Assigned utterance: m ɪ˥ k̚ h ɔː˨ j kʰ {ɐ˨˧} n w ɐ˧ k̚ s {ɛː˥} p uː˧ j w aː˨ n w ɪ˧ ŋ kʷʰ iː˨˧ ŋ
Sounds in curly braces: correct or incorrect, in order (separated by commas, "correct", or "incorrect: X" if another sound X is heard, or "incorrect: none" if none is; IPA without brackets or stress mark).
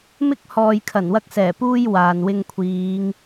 incorrect: ɐ˨˩, incorrect: ɛː˨˩